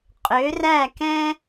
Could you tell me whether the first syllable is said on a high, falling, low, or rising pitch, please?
rising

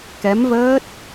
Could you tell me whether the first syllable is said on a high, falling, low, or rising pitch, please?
rising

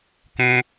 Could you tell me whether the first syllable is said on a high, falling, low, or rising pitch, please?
high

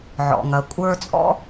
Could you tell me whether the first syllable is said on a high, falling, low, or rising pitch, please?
low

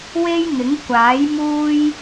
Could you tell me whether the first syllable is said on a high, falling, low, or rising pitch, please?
high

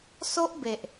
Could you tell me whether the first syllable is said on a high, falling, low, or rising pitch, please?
high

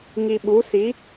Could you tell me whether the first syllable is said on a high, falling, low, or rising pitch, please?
low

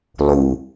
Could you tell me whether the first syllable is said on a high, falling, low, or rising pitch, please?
low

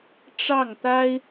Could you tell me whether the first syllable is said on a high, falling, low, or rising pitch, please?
falling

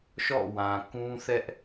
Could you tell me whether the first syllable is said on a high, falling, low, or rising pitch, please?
falling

